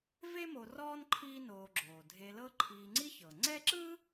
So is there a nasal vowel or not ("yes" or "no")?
no